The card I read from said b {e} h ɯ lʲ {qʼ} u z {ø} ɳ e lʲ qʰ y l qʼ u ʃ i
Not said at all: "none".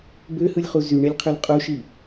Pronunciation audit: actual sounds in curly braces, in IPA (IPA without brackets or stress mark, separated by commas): ø, χ, y